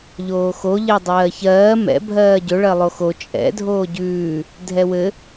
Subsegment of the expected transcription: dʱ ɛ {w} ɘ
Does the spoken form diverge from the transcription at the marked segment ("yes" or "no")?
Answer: no